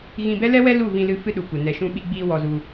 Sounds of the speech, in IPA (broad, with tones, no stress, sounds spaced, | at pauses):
ɣ ĩ˧ b ɛ˦ l ɛ˦ w ɛ˦ l u˦˨ v ĩ˧ l ɨ˧ f ɨ˦ ɗ u˨ kʷ ə˨ n ɛ˨ ʃ ũ˧ ɓ i˧ ɡ͡b iː˧ w ɔ˧ z u˧